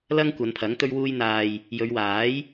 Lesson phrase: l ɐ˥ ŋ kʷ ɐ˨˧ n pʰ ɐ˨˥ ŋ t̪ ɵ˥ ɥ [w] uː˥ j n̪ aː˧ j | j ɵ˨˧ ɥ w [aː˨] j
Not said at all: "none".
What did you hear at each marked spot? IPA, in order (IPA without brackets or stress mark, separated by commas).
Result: w, aː˨˥